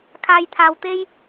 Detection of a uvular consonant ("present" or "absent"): absent